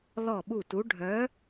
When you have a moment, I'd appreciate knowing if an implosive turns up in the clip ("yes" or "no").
yes